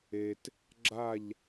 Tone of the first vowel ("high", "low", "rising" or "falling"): low